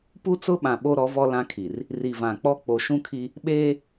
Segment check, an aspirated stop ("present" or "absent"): present